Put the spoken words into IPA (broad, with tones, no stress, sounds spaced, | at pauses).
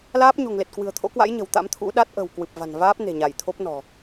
l aː˦˥ p̚ ɲ o̤˨˩ ŋ l e˨˩ t̚ k w ɨ̤˨˩ ə̯ t̪ʰ o̰˧˥ k w a̰˧˥ j ɲ ə̤˨˩ w t̪ a̰˧˥ m t̪ʰ ṵ˧˥ ɗ a˦˥ t̚ ʔ ə̤˨˩ w k w ɨ˨˩ p̚ v a̤˨˩ n v aː˦˥ p̚ n e̤˨˩ ɲ a˧˩ j t̪ʰ o˦˥ p̚ n ɔ̤˨˩